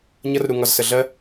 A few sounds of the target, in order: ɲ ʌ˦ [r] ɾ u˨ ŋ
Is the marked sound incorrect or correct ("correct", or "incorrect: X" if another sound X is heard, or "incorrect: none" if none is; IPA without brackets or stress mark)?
correct